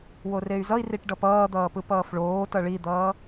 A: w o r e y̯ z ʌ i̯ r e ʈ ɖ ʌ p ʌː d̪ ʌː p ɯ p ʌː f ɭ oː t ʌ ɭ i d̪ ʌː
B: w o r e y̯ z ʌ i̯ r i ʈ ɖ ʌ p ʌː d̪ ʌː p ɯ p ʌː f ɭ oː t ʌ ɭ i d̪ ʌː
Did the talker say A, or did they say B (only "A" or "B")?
B